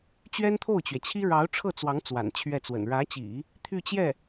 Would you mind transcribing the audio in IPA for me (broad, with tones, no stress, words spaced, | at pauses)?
t͡ɕɥɛ˥nt̪ʰo˥˩ʊ̯t͡ɕɥɛ˩t͡ɕʰi˥ ɻɑ˧˥ʊ̯ʈ͡ʂʰɤ˥˩t͡swɑ˧˥ŋ t͡swa̰˨˩nt͡ɕʰɥɛ˥˩t͡swə̰˨˩n ɻä˧˥t͡ɕḭ˨˩˦ | t̪ʰy˥˧t͡ɕjɛ˥˩